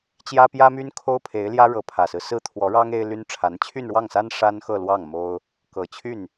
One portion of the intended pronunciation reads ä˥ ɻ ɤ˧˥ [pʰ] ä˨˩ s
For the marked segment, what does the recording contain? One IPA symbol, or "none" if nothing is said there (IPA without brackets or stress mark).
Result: pʰ